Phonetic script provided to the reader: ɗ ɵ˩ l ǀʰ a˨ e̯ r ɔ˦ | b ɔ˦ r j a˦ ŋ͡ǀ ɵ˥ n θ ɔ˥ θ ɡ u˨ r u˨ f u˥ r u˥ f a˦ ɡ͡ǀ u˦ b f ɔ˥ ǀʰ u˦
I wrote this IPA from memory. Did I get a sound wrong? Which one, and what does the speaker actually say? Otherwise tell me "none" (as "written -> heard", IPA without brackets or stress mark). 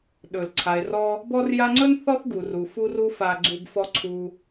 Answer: none